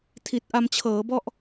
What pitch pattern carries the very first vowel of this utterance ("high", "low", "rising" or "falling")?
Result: low